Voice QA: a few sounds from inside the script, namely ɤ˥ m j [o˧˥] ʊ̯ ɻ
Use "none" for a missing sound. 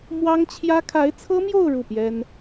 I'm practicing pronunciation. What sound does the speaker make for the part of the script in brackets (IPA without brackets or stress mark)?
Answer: o˥˧